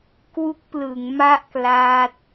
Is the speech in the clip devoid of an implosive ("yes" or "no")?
yes